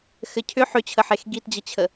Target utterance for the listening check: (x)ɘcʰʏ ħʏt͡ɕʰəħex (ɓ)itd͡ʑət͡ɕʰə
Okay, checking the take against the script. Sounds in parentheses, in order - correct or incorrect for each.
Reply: correct, incorrect: ɡ

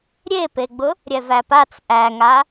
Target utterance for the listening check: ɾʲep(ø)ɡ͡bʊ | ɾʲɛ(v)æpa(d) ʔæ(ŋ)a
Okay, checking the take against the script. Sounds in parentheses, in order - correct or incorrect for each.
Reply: incorrect: e, correct, incorrect: t͡s, correct

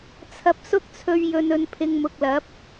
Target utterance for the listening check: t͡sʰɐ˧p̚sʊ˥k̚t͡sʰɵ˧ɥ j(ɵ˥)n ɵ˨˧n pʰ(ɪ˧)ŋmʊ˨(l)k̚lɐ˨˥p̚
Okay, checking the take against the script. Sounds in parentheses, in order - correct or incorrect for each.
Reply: incorrect: ɵ˨, correct, incorrect: none

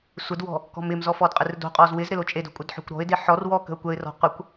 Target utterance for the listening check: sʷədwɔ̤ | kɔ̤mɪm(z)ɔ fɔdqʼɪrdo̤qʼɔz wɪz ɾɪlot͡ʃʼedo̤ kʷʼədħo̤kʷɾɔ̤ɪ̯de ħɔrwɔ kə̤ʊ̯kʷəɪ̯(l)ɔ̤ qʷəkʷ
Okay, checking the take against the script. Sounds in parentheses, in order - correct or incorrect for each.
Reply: correct, incorrect: r

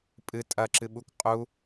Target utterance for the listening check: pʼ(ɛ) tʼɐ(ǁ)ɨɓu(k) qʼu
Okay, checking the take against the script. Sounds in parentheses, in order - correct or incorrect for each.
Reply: incorrect: ɨ, correct, correct

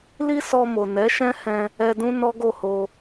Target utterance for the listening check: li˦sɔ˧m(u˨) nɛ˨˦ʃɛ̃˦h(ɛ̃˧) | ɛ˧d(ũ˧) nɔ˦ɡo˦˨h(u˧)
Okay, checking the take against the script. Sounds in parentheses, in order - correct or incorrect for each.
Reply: incorrect: o˨, correct, incorrect: ũ˦, incorrect: o˧

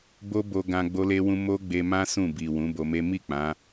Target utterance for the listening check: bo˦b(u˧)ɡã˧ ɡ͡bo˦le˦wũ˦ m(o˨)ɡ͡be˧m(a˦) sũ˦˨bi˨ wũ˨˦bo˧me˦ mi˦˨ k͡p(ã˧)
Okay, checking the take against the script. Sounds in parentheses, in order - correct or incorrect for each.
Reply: incorrect: o˧, incorrect: o˦, incorrect: ã˦, incorrect: ã˨˦

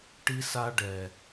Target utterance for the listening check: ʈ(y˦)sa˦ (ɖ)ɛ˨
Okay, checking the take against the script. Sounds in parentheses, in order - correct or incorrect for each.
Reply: incorrect: i˦, correct

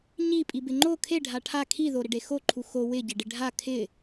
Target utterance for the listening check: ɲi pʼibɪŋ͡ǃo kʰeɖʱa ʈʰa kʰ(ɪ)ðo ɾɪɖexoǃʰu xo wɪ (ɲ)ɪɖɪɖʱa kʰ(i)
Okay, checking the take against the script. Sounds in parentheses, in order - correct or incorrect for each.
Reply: incorrect: i, incorrect: ɟ, incorrect: ɪ

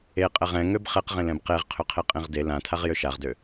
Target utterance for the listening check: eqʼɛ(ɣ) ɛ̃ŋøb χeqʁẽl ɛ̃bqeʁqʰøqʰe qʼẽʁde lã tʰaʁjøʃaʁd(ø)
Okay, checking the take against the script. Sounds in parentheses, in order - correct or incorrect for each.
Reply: incorrect: ʁ, correct

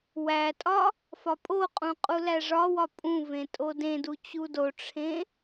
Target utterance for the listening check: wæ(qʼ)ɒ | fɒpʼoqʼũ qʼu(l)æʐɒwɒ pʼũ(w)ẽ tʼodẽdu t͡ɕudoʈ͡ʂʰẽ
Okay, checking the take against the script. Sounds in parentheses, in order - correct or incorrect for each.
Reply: incorrect: tʼ, correct, incorrect: v

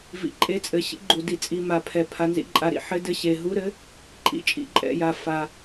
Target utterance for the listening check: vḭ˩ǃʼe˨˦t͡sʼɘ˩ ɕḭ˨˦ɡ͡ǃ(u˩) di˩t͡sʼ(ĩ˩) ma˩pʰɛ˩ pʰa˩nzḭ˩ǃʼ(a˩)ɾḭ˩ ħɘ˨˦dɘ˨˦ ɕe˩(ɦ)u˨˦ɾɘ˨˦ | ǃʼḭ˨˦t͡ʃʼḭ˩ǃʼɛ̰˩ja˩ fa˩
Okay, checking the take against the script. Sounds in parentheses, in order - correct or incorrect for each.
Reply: correct, incorrect: i˩, correct, correct

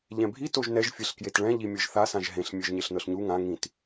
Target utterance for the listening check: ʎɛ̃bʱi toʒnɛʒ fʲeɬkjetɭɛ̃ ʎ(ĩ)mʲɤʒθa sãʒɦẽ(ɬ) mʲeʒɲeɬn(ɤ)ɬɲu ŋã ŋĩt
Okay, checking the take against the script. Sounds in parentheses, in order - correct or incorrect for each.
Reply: incorrect: i, correct, correct

